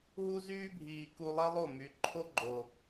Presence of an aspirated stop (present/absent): present